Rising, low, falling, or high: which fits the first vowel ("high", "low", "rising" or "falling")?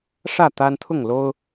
falling